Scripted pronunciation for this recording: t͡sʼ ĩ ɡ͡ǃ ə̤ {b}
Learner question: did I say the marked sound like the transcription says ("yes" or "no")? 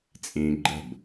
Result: yes